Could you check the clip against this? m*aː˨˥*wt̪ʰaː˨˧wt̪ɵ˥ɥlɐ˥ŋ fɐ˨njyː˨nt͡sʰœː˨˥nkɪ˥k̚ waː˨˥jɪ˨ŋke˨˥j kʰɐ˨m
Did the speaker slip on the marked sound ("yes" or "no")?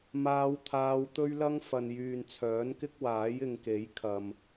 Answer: yes